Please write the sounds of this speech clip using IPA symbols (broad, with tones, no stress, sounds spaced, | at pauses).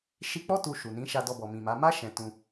ʃ i˧ k͡p ɔ˦ t u˧ ʃ u˨ n ĩ˨˦ ʃ a˧ d ɔ˧ b ɔ˨ m ĩ˨ m a˨˦ m a˦ ʃ ɛ̃˧ t ũ˧